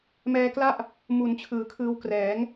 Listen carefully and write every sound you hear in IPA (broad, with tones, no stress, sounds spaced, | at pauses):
m ɛː˧ k l a˥˩ ʔ | m u˨˩ n t͡ɕʰ ɯː˩˦ kʰ ɯː˧ w k r ɛː˩˦ ŋ